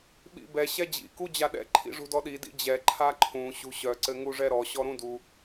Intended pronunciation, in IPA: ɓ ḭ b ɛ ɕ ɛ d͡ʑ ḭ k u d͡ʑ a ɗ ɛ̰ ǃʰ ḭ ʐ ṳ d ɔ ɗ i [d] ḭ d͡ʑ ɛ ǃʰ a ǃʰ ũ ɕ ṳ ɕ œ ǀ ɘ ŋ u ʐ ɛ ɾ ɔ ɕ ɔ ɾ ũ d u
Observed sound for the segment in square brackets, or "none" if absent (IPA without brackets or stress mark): d